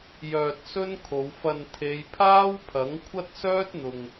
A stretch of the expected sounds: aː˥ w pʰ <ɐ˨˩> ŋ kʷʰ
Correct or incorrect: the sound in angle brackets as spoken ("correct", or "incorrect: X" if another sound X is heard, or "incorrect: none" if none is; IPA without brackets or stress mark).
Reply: incorrect: ɐ˨˥